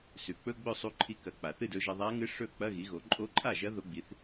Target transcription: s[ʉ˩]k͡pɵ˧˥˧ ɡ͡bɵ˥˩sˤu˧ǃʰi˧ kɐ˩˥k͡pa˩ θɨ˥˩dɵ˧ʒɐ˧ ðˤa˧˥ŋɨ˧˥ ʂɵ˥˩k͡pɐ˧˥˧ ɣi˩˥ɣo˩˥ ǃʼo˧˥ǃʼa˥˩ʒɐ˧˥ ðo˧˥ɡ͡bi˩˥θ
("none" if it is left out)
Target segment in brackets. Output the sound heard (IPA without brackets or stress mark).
ʉ˩